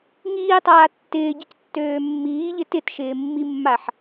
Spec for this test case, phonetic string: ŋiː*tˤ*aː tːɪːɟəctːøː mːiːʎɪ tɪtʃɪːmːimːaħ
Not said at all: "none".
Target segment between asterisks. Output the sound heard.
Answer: tˤ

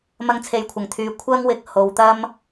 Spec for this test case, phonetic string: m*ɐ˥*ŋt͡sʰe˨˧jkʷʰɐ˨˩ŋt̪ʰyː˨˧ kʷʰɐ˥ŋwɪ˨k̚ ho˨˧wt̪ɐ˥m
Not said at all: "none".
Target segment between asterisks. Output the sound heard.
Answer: ɐ˧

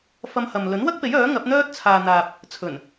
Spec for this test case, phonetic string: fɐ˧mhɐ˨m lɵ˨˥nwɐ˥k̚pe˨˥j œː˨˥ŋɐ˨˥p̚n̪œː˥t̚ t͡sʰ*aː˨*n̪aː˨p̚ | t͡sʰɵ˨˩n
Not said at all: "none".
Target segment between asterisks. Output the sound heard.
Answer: aː˨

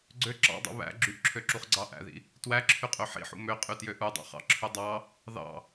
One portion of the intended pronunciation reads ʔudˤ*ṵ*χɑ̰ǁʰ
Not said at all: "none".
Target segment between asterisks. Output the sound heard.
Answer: ṵ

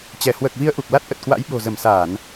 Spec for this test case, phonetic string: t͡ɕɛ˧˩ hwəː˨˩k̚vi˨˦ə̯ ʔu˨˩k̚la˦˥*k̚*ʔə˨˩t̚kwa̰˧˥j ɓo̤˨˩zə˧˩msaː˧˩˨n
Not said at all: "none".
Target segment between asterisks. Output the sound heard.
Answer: t̚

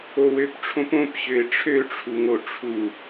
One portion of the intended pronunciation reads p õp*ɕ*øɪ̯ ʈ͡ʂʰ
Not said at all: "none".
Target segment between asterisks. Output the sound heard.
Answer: ɕ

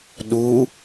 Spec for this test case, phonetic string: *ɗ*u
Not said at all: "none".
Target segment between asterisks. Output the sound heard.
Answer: ɗ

